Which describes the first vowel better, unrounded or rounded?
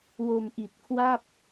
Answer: rounded